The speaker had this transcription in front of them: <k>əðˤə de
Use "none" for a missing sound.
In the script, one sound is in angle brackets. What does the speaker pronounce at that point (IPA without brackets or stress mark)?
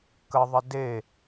k